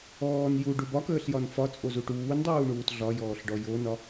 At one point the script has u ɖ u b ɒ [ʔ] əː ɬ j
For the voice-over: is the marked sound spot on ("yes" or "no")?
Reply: no